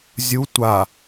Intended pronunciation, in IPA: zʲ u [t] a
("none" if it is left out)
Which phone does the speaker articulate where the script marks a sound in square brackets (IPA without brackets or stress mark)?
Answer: tʷ